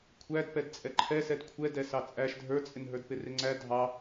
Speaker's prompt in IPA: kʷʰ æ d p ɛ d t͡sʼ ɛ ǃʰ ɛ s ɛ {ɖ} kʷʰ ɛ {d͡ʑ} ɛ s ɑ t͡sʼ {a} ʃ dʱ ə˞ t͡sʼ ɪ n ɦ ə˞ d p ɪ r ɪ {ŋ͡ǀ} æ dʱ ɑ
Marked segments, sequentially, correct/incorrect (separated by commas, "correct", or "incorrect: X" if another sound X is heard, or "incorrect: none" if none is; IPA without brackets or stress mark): incorrect: d, incorrect: d, incorrect: æ, correct